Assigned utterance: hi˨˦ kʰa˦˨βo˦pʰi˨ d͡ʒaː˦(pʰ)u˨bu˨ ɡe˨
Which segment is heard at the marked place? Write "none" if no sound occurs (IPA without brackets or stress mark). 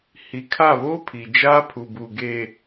pʰ